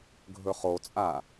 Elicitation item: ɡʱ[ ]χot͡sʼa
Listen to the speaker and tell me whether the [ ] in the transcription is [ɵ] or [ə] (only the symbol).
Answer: ɵ